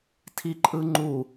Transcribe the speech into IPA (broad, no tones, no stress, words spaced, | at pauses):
tʰiǃʼɯŋ͡ǃu